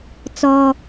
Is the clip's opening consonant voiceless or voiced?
voiceless